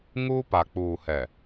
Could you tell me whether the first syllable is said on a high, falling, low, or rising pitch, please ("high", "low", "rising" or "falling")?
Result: high